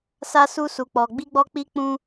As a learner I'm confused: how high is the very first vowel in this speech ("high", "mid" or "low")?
low